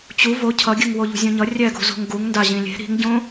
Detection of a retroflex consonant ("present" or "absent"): absent